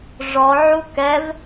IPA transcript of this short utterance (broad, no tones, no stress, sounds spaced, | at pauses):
ʐ ɔ ʕ u k ɛ v